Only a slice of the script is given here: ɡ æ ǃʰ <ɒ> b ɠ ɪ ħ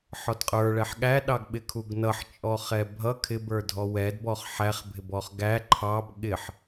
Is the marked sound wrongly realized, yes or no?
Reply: yes